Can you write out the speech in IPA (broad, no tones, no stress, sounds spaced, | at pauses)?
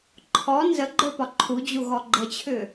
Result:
ǃʰ ɔ n z ə ɡ͡ǃ ə˞ p ɒ ǃʰ u d͡ʑ u ɣ ɔ ɡ͡ǃ ə t͡ɕʰ ʏ